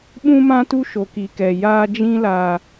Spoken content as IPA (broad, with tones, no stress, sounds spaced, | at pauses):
ɓ ũ˦ m ã˦ t u˦ ʃ o˨ k i˨ k ɛ˨ j aː˦ d͡ʒ ĩ˦ l aː˨